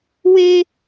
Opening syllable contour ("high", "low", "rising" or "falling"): high